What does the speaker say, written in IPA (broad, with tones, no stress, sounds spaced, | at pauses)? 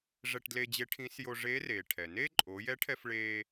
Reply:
ʐ ɛ˧ ʈ d l e˧ d͡ʑ e˧˥ ʈʰ ĩ˧˥ s j o˧ ʐ eː˧˥ r eː˩ ʈʰ ɛ˩ n e˥ ǃʼ o˩˧ j ɛ˧˥ ʈʰ ɛ˧ f ɭ eː˧